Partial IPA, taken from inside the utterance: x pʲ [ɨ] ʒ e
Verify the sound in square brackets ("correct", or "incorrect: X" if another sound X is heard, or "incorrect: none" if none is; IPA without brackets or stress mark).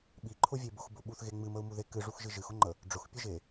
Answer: correct